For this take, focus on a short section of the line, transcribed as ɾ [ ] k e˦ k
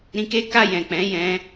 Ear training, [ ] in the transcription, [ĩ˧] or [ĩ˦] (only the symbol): ĩ˧